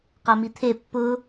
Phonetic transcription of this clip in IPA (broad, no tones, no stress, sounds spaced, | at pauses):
q a m i t̪ʰ e pː ʊ